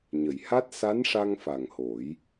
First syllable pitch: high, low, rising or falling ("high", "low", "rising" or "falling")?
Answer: low